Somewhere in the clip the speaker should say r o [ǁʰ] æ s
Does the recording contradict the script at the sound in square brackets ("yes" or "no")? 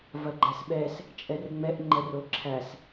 no